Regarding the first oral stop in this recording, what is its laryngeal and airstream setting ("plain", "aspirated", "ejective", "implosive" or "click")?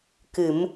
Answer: plain